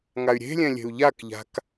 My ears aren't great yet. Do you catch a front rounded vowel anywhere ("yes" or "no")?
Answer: yes